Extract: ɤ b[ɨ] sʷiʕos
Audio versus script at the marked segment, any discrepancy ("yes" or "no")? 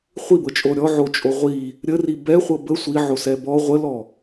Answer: yes